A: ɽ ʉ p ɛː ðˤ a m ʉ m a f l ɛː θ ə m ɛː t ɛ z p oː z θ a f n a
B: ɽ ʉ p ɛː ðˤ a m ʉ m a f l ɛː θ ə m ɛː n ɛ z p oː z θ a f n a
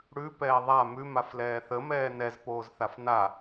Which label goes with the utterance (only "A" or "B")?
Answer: B